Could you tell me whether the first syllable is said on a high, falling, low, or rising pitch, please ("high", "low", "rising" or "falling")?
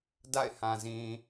falling